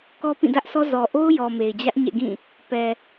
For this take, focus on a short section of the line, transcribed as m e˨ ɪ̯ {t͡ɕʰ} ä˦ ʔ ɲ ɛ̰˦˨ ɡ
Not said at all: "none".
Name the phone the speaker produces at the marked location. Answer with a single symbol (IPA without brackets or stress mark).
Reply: d͡ʑ